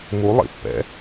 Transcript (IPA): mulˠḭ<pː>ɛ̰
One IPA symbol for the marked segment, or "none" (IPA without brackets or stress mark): pː